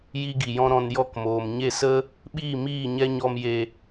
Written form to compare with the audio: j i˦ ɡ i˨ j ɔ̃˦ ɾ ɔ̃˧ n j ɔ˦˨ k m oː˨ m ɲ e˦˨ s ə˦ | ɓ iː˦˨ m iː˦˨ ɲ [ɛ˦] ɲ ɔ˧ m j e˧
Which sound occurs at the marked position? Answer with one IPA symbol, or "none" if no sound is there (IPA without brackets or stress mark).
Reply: ɛ˦